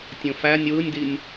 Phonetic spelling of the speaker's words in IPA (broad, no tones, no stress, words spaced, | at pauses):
tʲõfænʲ wɯnʲdinʲ